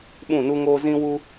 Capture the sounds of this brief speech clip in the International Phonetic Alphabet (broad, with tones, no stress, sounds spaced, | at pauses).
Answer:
ɓ ũ˦˨ n u˦ ŋ oː˦ z ĩ˦ w u˦